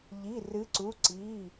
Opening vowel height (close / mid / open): close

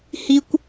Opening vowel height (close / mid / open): close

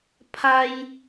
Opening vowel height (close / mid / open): open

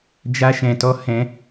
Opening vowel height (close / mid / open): open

